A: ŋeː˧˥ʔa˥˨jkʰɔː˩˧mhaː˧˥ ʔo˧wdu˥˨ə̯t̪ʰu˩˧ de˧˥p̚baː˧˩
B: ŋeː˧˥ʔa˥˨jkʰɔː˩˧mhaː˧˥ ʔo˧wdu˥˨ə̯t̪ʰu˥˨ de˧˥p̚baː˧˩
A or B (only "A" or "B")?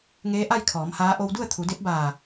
A